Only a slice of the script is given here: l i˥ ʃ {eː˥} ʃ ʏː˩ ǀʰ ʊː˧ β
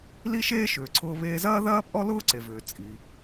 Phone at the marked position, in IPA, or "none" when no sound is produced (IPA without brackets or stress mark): eː˥